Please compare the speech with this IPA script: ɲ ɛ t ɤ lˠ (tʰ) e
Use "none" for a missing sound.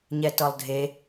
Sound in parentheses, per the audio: dʱ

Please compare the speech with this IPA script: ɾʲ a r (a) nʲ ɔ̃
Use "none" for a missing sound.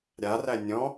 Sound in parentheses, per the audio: æ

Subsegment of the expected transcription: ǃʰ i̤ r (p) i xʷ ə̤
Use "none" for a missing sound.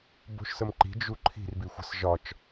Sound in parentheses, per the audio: b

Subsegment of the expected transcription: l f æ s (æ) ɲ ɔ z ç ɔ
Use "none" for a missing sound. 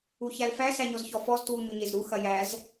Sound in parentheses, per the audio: æ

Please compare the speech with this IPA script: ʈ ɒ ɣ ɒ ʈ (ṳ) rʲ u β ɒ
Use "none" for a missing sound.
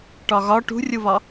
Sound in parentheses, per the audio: ṳ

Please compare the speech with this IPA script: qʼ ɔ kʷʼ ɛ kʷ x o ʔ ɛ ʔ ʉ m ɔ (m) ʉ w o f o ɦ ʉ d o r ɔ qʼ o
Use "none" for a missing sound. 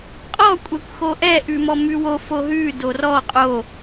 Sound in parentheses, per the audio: m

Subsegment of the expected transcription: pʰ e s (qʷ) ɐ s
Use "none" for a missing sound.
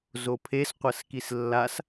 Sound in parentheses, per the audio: qʷ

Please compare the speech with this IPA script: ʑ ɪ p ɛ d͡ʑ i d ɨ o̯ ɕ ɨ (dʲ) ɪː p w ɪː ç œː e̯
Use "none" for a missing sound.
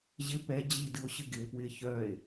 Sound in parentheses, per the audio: ɡ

